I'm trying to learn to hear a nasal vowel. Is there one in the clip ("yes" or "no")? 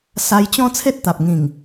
yes